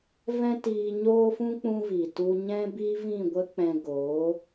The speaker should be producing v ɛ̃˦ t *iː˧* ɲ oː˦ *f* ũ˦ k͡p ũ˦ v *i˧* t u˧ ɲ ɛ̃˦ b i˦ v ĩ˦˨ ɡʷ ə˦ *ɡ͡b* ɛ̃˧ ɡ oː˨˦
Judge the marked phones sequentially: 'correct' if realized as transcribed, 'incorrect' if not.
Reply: correct, correct, incorrect, incorrect

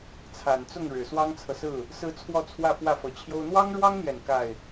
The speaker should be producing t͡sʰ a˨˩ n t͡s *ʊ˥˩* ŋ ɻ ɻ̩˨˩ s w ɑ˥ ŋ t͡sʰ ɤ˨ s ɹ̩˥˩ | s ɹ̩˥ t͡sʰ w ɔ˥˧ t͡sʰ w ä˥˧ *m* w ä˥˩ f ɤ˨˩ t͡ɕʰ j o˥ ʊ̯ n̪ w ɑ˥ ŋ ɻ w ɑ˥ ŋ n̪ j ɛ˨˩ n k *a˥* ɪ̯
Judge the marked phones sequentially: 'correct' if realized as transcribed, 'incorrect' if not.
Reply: correct, incorrect, incorrect

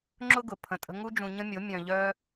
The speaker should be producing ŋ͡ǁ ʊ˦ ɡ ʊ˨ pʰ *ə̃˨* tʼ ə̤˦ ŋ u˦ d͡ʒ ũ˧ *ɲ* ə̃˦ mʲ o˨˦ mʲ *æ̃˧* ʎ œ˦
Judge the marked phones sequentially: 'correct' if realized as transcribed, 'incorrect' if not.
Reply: incorrect, correct, incorrect

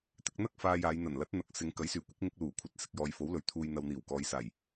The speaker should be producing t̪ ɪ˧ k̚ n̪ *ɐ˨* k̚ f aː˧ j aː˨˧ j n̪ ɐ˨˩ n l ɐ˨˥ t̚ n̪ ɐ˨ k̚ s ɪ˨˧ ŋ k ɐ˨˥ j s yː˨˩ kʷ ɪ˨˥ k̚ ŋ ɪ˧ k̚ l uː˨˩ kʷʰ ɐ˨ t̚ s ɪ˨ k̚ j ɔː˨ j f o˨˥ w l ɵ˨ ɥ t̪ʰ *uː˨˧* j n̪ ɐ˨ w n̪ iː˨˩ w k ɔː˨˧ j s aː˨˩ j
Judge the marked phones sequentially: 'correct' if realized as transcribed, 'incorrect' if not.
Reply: incorrect, incorrect

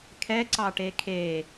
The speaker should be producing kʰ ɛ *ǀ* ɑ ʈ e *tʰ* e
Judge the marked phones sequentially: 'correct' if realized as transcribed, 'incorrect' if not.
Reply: correct, incorrect

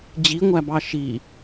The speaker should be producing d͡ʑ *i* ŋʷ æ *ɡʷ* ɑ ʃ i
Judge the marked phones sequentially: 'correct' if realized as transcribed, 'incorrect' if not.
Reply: correct, incorrect

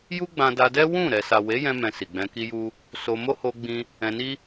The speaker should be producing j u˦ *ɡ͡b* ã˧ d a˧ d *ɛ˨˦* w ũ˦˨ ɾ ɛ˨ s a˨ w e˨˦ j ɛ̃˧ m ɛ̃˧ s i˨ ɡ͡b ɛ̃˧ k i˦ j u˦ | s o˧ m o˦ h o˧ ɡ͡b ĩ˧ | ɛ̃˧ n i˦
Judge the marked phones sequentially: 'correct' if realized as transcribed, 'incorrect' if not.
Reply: correct, incorrect

